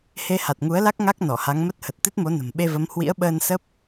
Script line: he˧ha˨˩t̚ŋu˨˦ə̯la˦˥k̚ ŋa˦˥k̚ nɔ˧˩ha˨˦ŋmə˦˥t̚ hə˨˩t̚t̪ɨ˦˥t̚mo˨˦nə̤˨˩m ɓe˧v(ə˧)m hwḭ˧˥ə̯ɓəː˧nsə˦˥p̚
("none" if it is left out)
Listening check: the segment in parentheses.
ə˨˦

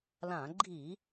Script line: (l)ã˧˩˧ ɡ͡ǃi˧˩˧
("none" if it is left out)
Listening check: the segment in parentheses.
l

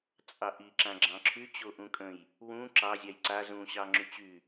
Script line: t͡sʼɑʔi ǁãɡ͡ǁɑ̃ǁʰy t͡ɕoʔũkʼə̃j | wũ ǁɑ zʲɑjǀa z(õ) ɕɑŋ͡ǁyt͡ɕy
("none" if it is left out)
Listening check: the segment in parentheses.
ũ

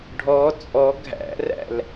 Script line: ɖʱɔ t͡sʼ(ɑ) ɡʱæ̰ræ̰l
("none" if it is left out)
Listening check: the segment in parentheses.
ɔ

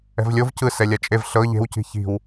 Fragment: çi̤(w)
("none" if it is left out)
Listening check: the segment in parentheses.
w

